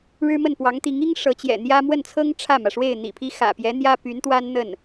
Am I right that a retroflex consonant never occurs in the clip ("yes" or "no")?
no